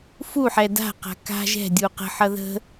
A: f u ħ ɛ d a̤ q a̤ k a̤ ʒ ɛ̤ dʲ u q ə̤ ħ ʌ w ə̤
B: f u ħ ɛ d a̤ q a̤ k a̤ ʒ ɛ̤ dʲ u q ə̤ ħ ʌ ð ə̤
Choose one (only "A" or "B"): B